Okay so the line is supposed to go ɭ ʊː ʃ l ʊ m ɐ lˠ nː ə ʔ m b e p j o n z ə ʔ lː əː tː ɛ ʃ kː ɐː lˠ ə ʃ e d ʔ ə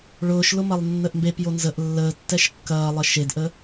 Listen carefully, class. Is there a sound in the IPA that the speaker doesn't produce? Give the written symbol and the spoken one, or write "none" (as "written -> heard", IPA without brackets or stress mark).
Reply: none